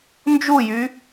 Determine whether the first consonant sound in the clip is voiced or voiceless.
voiced